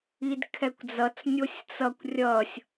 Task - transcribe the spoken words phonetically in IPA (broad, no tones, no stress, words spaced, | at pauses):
idkʰɛkʷd͡zʌt͡s nʲosʲt͡sʌkʷ rʲʌsʲ